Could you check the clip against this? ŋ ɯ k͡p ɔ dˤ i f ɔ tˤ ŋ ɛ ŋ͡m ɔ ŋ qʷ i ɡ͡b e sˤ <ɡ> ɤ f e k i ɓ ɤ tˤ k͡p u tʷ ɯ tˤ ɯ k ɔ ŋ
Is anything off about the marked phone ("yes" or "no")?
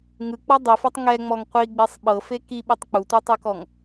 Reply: yes